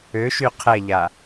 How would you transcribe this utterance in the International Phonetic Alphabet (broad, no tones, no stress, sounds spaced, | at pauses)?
ø ʃ y qʰ ɛ ʎ a